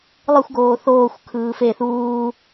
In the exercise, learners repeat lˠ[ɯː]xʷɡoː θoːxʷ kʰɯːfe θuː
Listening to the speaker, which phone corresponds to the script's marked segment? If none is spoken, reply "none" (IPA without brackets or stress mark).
ɯ